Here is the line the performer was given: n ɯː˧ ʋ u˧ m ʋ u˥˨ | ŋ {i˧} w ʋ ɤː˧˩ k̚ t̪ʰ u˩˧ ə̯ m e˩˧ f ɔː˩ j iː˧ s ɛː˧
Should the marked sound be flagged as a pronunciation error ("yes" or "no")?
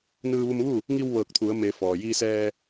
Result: no